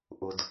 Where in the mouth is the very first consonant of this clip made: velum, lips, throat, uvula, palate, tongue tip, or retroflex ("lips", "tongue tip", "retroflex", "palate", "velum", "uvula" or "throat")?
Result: throat